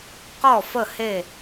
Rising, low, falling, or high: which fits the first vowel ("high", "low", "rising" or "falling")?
falling